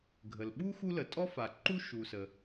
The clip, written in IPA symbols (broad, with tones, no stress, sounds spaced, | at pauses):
ɡʱ ə˩ l ɓ u˥ x u˥ l ə˩ tʼ ɔ˥ f a˩ ǃ u˥ ʃ u˩ s ə˩